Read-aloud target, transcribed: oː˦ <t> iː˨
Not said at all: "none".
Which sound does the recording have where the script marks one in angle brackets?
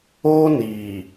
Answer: n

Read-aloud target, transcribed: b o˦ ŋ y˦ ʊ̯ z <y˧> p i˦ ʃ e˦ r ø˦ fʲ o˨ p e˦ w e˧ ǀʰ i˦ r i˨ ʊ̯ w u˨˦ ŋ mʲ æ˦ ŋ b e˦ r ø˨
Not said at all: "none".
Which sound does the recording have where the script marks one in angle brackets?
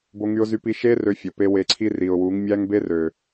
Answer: y˦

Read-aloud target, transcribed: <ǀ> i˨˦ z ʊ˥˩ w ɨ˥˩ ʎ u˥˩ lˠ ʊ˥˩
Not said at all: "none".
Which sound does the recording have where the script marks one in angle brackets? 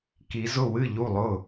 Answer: k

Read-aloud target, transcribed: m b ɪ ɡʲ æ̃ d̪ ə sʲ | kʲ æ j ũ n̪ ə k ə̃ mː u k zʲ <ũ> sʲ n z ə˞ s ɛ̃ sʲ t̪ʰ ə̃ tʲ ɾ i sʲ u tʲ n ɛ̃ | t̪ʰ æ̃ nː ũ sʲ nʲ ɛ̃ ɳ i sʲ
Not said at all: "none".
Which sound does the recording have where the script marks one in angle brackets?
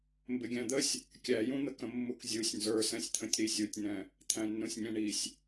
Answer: u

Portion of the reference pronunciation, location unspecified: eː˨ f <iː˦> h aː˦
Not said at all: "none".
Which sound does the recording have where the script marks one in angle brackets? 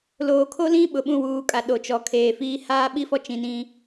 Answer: iː˦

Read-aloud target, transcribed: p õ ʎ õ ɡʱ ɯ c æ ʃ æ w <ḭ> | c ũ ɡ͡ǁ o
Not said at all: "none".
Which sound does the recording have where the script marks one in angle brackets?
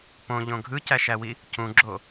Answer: i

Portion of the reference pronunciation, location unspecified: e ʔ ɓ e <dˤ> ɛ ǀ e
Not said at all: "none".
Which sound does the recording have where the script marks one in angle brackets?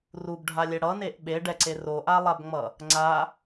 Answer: ɖ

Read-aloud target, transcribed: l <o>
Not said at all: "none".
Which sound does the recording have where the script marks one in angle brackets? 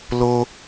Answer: o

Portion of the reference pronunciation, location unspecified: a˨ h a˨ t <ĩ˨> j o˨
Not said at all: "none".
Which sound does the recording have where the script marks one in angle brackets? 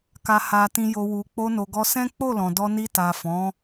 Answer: ĩ˨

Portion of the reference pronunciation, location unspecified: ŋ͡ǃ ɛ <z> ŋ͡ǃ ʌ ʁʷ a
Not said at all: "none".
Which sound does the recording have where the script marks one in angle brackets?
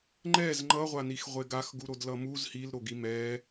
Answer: z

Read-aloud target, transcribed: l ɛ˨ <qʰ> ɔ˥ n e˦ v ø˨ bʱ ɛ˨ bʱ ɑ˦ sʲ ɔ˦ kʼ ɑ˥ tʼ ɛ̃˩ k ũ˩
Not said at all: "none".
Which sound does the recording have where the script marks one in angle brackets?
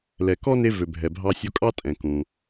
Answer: k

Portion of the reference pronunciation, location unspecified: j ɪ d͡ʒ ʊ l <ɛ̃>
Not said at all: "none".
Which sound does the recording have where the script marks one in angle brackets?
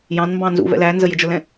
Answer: ɛ̃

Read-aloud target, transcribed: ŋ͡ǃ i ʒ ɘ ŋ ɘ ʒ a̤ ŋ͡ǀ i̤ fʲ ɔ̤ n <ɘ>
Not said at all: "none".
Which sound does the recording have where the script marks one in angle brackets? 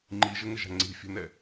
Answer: ɛ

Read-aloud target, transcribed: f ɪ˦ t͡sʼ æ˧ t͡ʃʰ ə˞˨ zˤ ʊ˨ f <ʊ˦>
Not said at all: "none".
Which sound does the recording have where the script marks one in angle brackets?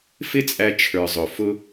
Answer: ʊ˦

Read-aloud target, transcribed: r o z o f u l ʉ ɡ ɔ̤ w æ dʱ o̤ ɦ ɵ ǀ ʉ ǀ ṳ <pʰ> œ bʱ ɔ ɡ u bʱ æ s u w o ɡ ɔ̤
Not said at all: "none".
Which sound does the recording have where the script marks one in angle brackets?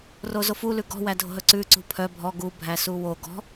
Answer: pʰ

